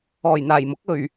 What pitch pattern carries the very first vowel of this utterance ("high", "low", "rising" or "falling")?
low